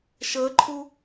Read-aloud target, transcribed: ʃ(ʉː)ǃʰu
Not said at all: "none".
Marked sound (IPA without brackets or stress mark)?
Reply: əː